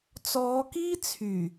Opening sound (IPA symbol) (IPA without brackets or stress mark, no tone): t͡s